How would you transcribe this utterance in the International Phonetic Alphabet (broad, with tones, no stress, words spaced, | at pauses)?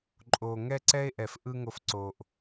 ǃʼo˨ ŋɛ˦ǀɛ˦e̯ʔɛ˨fʔɯ˦ ŋo˨fǀo˨ʔ